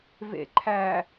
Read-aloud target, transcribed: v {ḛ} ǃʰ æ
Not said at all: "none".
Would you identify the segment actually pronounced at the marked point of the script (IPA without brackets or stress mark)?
ḛ